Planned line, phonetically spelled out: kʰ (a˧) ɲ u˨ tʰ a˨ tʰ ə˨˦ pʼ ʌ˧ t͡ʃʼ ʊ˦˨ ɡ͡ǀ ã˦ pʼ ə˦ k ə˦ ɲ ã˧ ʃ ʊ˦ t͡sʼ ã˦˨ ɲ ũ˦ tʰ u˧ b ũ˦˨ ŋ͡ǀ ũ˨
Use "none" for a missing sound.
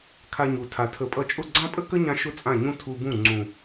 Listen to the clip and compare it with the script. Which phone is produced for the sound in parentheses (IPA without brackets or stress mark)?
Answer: a˧